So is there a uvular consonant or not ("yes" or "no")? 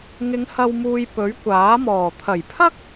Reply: no